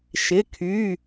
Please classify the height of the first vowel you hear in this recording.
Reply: high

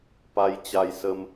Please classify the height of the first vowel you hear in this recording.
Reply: low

